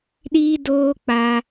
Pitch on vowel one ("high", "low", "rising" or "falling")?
high